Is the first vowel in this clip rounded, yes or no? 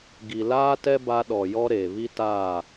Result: no